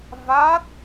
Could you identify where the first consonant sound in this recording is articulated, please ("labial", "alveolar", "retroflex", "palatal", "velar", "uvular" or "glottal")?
labial